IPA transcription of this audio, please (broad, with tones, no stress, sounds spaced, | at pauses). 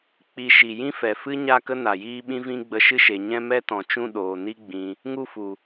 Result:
k͡p i˧ ʃ i˨ j ĩ˦ f ɛ˨ f ɨ˦ ɲ a˦˨ k ə˦ n a˨ j iː˦ ɓ ĩ˦ v ĩ˦ ɡ͡b ə˧ ʃ ɨ˦ ʃ e˨ ɲ ɛ̃˦ m ɛ˦ t ɔ̃˨ t͡ʃ ũ˦˨ ɗ oː˨ n i˦ ɡ͡b ĩ˧ | ŋ u˦˨ f u˨